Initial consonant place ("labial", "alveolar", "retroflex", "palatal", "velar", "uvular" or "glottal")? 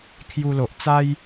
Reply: velar